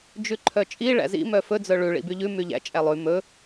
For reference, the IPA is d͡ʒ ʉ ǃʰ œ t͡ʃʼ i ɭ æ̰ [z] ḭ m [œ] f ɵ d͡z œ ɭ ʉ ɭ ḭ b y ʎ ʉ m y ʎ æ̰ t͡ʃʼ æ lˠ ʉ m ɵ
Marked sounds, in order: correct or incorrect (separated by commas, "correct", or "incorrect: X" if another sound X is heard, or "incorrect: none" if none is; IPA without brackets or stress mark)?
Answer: correct, correct